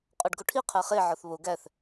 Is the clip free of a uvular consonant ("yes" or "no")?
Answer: no